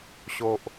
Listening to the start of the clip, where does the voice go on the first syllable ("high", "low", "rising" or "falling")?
low